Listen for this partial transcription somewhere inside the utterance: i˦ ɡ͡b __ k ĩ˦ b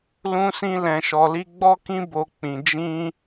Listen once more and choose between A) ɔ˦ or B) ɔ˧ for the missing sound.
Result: A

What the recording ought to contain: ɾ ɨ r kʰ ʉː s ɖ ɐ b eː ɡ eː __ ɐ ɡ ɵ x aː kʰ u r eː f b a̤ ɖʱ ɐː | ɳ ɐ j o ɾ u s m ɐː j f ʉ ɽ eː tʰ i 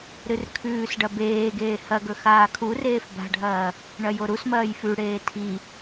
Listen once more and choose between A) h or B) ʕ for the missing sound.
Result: A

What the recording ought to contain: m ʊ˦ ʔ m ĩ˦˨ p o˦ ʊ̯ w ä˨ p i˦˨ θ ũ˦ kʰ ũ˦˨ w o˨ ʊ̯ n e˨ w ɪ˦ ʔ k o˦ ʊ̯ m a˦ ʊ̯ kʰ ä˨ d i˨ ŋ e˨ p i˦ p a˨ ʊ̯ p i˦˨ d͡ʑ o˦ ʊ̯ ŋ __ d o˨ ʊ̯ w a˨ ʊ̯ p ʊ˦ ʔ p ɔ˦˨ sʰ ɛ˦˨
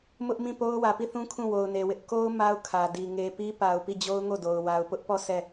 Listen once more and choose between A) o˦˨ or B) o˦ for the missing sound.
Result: A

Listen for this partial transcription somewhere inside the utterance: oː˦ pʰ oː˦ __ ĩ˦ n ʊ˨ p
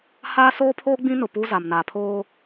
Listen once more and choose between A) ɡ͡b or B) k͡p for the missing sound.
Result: A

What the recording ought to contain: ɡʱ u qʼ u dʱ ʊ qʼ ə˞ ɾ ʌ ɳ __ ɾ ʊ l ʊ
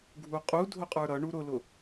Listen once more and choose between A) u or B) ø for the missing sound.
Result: A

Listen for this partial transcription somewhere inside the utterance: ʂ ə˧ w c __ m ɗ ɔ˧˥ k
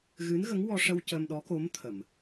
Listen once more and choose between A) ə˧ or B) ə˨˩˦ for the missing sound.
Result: A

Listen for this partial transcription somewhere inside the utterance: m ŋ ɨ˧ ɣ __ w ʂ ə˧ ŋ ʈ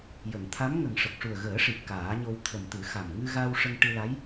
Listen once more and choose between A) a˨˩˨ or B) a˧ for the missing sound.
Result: B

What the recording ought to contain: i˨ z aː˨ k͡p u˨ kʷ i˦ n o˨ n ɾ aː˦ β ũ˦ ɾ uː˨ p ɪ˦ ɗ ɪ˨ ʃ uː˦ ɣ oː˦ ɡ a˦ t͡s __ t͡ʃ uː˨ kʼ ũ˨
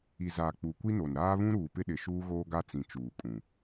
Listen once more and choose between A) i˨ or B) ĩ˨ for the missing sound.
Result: B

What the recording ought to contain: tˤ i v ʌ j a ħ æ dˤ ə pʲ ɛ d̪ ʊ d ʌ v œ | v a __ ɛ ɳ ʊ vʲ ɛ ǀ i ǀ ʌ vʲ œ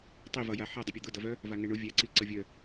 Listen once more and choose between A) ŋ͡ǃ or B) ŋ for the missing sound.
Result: B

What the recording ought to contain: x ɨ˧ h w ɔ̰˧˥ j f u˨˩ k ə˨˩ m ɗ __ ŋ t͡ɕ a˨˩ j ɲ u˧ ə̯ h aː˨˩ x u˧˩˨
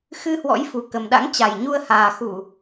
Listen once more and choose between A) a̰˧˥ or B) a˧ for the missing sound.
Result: A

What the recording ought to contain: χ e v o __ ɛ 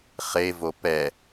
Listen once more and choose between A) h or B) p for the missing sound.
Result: B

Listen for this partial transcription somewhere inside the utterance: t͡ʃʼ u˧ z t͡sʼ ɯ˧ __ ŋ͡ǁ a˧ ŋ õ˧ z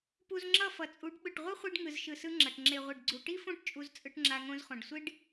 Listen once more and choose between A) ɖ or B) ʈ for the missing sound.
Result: B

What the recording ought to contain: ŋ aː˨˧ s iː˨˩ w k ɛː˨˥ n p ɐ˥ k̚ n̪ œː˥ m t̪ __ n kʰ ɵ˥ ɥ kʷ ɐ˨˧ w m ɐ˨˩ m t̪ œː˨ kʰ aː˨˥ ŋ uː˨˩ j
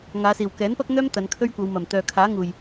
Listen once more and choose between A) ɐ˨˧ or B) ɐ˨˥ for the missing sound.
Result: A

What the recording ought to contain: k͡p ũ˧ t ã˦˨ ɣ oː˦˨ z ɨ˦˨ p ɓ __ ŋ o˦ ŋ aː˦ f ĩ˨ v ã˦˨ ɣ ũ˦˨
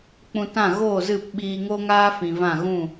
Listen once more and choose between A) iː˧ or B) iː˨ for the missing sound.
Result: A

